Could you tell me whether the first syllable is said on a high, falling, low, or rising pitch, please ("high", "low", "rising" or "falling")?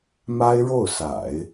high